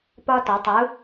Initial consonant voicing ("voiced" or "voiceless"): voiceless